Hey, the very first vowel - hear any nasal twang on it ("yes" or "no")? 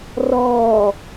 no